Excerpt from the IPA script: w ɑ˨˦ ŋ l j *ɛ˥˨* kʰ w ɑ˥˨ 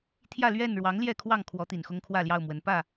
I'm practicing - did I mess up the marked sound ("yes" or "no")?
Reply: no